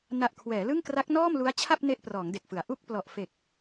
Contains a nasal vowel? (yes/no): no